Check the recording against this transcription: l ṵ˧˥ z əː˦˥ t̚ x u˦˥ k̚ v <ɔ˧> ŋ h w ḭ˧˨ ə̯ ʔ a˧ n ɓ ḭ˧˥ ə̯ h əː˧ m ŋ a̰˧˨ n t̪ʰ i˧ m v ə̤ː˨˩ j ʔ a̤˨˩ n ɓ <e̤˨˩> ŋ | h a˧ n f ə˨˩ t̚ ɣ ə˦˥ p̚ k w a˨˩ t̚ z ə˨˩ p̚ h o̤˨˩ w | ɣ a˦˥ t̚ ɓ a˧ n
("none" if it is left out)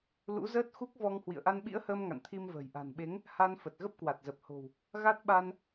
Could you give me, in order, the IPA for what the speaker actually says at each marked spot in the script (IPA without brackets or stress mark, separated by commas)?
ɔ˧, e˨˦